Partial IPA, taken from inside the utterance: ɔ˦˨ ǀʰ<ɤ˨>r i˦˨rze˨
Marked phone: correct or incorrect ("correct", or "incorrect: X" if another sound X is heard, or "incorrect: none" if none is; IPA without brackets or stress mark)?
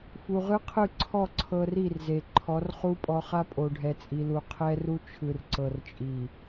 correct